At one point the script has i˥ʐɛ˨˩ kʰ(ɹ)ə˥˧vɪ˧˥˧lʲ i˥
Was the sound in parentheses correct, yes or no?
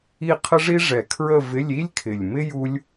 yes